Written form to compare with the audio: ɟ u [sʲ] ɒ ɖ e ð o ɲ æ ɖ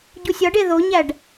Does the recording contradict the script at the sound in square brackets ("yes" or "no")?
no